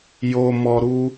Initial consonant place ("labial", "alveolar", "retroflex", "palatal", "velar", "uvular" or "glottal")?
palatal